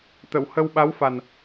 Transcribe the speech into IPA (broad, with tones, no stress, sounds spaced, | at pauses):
t̪ ə˨˩˨ w h ə˧ w ɓ a˧˥ w f a˨˩ n